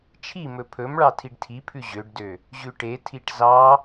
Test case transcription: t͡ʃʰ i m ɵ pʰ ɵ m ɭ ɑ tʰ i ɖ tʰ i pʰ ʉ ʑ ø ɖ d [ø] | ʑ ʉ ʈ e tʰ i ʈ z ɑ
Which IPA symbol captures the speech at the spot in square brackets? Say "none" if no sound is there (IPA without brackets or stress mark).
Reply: ø